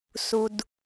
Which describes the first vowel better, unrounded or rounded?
rounded